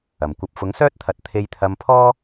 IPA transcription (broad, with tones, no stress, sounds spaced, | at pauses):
ɐ˨˩ m kʷ ɐ˨ p̚ f ʊ˨˥ ŋ s œː˥ t̚ t̪ʰ ɐ˨˥ t̚ t̪ʰ e˧ j t̪ʰ ɐ˧ m pʰ ɔː˥